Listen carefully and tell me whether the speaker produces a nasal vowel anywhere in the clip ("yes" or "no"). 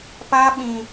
yes